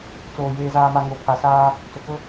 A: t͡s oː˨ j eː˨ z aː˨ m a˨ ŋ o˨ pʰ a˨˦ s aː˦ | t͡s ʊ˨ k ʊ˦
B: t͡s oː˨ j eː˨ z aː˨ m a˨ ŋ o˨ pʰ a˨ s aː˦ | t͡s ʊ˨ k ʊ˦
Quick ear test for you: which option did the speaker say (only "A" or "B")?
B